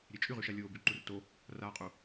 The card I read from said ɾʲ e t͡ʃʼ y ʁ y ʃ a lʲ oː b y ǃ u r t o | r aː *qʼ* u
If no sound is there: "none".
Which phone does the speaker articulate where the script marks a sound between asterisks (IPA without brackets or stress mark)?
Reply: qʼ